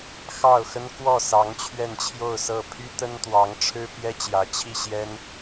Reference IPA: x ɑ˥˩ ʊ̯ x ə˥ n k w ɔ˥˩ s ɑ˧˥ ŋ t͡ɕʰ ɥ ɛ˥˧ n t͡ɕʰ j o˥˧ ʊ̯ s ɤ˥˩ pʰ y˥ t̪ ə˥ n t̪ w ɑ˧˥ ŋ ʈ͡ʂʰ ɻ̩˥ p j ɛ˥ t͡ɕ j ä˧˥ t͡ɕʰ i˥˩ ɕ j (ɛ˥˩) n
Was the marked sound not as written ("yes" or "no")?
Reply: yes